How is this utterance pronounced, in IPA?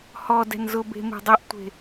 hɔdɛ̤n zʊbe̤ me̤dˤɛʔtʷe̤

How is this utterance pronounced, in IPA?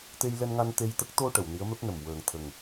t̪e˧jlɛ˧nŋa˧n t̪e˧jt̪ə˦˥k̚ t̪o˧ ʈə˨˩˨wni˧˥ə̯mɛ˦˥p̚nə˨˩m wəː˨˩ŋt̪ʰə˨˩ŋ

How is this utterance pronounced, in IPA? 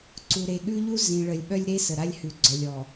ǀu˨ɾe˨ɠʉ˦ʎu˦ zĩ˨ɭə˨lʲ ɓœ˦lʲɾe˦sə˨ɾa˦lʲ hʉ˨ɡ͡ǀœ˨lʲɔ˨

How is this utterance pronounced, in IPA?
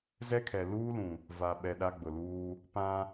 zɛ˦kʰɛ˨ luː˦lũ˨ | va˨ɓɛ˨ ɗa˦ɡ͡bʊ˨luː˦ | pã˦

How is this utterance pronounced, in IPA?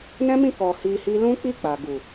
nɛ̃˦mĩ˦˨kɔ˨ hi˧hi˦ lũ˦k͡pi˦˨k͡pa˨ɡu˨

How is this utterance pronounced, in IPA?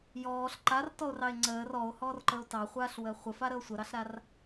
jɔːɬ ǃartɔo̯rɑe̯ ŋ͡ǀəːr ɔo̯hɔːrǃəo̯ tɑχʷaːɬwəː χʷəfaɾəo̯ sʷəɾɑɬɾar

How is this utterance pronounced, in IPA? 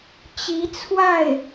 t͡ɕi˧˥ t͡sʰwa˥˩ɪ̯

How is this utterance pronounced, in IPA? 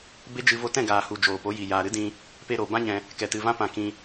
be˦d͡ʒɨ˧ vo˧tɛ̃˦˨ ɡaː˨hu˨ d͡ʒoː˨po˨˦ji˨ jaː˨ɾɨ˦dĩ˧ | pe˧ɾo˨bã˦ɲɛ̃˧ | kɛ˨tɨ˨ vã˧pã˨ kĩ˧

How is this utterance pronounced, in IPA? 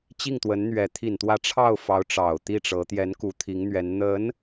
t͡ɕi˥˩ŋt̪wə˧˥nn̪ɥɛ˧˥ t̪ʰi˨˩nt̪wä˧˥ ʈ͡ʂʰɑ˥˩ʊ̯fɑ˧˥ʊ̯ ʈ͡ʂɑ˨˩ʊ̯t̪i˥˩ʈ͡ʂɤ˧˥ t̪jɛ˧˥nku˧˥ t̪ʰi˧˥ŋn̪ɥɛ˧˥n n̪ə˧˥n

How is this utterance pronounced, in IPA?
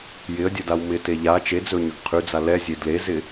jɪə̯dʲɵdaw mɪte ʎa t͡ʃed͡zɵɲɵɡ qʰyd͡za lɛzʲe dlezɪ

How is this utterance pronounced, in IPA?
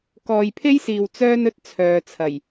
kɔː˨jpʰe˥jsiː˨w t͡sœː˥nɵ˥t̚ t͡sʰœː˨t͡sʰɐ˨˩j

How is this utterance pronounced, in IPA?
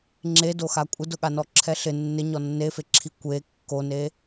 ŋ͡ǁedoxa kʷʼɪdʊɠanɔ ǁʰɛɬɪ nːɪ ɲɔnːefeǁʰi kʷe kːone

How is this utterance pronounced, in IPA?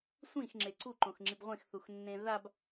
sʷĩxŋ͡ǁe ǀʰuǃõxŋ͡ǁib ʁʷẽxθuxnːẽ ðab

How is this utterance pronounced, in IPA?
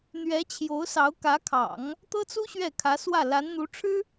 n̪ɥɛ˧˥t͡ɕʰjo˧˥ʊ̯sɑ˧˥ʊ̯ kä˧˥ kʰɑ̰˨˩˦ŋ | t̪ɤ˥t͡su˥ ɕɥɛ˥˩kʰä˧˥swä˥˩ la˧˥nn̪u˧˥ʈ͡ʂʰɻ̩˥

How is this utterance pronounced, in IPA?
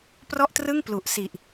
prɔ˥˩ʔtrɯ˥˩ŋ plu˨˩ʔsi˨˩ʔ

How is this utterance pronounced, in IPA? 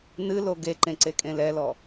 nɨlo ɡeǃẽ ǀekʼẽlɛlɔ

